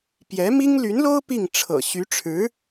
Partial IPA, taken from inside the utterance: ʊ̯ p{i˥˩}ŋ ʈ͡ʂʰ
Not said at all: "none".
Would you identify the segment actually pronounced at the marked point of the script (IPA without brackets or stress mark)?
i˥˩